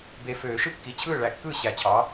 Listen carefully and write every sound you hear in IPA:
b e˨ f øː˨˩˦ ʃ ɯ˥˩ kː i˨ t͡ɕʰ ɯː˥˩ ɭ æ˨˥ kː ɯː˥˩ ɕ æ˨˩˦ t͡ɕʰ ɑ˨˥

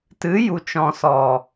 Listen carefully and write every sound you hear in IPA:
t ɨ˨˦ j u˨ t͡ʃ ɔ̃˨ s ɔ˨

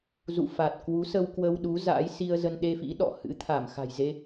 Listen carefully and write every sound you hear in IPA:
z ṵ˧˨ f a˨˩ t̚ k w u˨˦ s ə˧ w k w ə˧ w ɗ u˨˦ z a̰˧˥ j s i˧ ə̯ z ə˧ n ɗ e˧ f ḭ˧˥ ɗ ɔ̰˧˨ h ɨ̰˧˥ t̪ʰ a˧˩ m x a̤˨˩ j z e˧

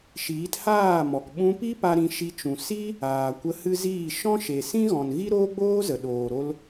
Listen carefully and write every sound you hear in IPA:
ʃ iː˨˦ t h aː˦˨ m ɔ˨ k ɓ ũ˧ p i˦ p a˦ ɾ ĩ˧ ʃ i˧ t͡ʃ ũ˨ s i˦ | aː˨ kʷ ə˧ h ɨ˦ z iː˦˨ ʃ ɔ̃˦ ʃ e˨ s ĩ˦ ɣ ɔ̃˨ n ɣ i˦ ɾ oː˦ ɡ͡b oː˦ z ə˨ ɗ oː˨ ɾ o˧ l

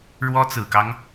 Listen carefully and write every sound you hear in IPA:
ɻ w ɔ˥ t͡s ɹ̩˨˩ k ɑ˦ ŋ

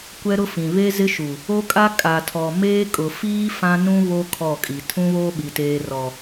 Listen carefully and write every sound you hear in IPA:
kʷ ɛ˦ ɾ ʊ˦ f ĩ˨ β e˦ z ɪ˦ ʃ u˨ | o˦ kʼ a˦ kʼ a˨ tʰ ɔ˨ m eː˦ kʼ ʊ˨ f iː˦ f ã˦ n ũ˦ β o˦ kʰ ɔ˦˨ kʼ i˨ tʰ ũ˦ β oː˦ ɓ i˨ t eː˨ r ɔ˨

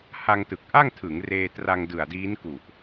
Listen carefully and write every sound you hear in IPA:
h a˧ ŋ t ɯ˨˩ k̚ ʔ a˥˩ ŋ tʰ ɯ˩˦ ŋ r eː˧ t r a˧ ŋ d ɯ˨˩ a̯ d iː˦˥ n k u˨˩ ʔ

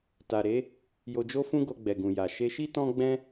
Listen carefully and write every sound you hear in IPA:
t a˨ ɾ e˨˦ | j o˧ d͡ʒ o˦ f ũ˦ ɡ o˧ ɡ͡b ɛ˨ ɡ ũ˨ j a˨ ʃ e˧ ʃ i˦ t ɔ̃˦ ɡ͡b ɛ̃˦

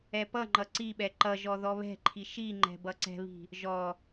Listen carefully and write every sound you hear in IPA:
ɛ p ʌ ŋ͡ǃ ʌ ǀ i ɓ ɛ ǃ ʌ ʒ ɔ ð ɔ β ɛ̤ ǃʰ i ʃ i ŋ͡ǃ ɛ̤ b ʌ ǀ ɛ̤ β i̤ | ʒ ɔ

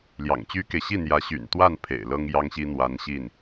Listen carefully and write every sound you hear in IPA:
l j ɑ̰˨˩ ŋ t͡ɕ y˥ k e˨ ɪ̯ ɕ i˥˩ n̪ j ä˧˥ ɕ y̰˨˩ n t̪ w a˥˩ n pʰ ḛ˨˩ ɪ̯ l ɤ˥ ŋ j ɑ˥ ŋ ɕ i˥ n̪ w a˧˥ n ɕ i˥˩ n

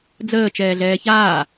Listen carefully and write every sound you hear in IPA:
d͡z əː t͡ʃ ɛː ɮ ɛː ç aː

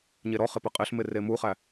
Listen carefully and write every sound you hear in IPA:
ɲ e ɾ ɔ χ ɪ p ɘ qʼ ɪ ɬ m ɪ r e m u χ æ

